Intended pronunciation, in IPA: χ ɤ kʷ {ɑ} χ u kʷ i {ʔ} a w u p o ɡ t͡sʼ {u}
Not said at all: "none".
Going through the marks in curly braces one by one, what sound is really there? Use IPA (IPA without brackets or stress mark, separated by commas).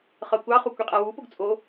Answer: ɑ, qʼ, o